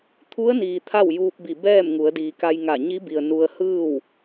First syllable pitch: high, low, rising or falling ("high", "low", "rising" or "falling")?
rising